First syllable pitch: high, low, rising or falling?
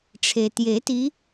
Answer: low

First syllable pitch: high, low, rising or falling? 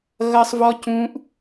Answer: high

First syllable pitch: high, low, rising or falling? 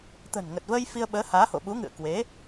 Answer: low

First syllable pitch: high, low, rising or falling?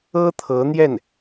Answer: high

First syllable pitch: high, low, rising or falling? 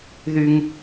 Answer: high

